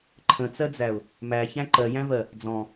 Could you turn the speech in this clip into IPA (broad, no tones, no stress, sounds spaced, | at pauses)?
ǃʰ ə̃ t͡s ɜ d͡z æ ʊ̯ | m æ ç æ̃ ǃ ɜ j æ̃ v ɜ | d͡z ɔ̃